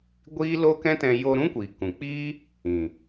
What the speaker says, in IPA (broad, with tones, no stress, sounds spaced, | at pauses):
ɡʷ iː˦ l o˦ k ɛ̃˦ t ɛ̃˧ j o˧ ɾ ũ˦ kʷ iː˨ k ũ˨ k͡p iː˦ | ĩ˨